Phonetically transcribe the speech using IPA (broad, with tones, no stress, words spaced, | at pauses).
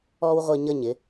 ɔ˦wʁʷi˧ɲə˦˨ɲ ɪ˨˦